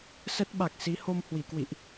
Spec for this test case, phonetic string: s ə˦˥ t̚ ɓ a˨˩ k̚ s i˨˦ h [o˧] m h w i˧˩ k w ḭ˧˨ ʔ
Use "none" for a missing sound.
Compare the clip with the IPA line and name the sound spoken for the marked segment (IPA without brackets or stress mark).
o˧